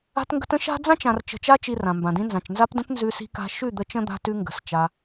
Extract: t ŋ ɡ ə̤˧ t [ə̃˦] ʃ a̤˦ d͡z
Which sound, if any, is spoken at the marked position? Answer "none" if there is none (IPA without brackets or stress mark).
ə̃˦